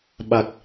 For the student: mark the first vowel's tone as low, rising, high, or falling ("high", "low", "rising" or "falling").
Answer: low